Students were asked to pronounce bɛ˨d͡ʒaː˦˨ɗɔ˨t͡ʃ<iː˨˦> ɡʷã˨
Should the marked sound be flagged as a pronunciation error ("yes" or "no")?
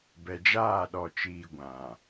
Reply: yes